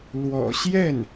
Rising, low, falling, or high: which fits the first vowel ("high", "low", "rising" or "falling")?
low